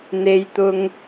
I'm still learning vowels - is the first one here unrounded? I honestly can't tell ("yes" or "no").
yes